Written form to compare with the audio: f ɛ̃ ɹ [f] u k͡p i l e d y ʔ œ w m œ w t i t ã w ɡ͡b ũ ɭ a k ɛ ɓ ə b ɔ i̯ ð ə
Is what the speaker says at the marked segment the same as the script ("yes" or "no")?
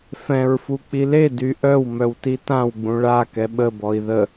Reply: yes